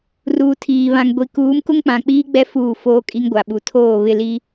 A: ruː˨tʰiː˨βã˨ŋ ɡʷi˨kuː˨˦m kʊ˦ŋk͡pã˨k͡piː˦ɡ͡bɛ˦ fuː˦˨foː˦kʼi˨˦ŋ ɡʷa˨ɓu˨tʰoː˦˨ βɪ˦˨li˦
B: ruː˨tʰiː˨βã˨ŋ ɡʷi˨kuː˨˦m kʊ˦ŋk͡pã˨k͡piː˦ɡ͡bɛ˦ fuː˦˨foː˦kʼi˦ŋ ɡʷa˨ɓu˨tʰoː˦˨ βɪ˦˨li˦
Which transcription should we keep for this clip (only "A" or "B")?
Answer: B